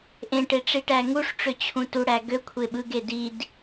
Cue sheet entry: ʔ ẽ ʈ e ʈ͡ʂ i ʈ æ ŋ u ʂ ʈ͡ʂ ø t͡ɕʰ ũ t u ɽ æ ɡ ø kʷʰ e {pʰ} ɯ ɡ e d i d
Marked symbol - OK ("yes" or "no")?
no